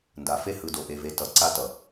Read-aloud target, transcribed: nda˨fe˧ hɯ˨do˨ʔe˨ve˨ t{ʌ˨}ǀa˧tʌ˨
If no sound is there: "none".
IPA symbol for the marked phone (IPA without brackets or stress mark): ʌ˨